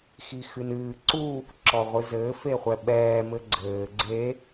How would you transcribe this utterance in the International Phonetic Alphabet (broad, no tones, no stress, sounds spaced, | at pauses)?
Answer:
x i x ɨ n ɨː ǀ u | ǁ ɔ ʁʷ ɨ z ɘː f e χʷ ɛ ɓ ɛː m ɘ ɡ͡ǀ ɘː ɡ͡ǀ e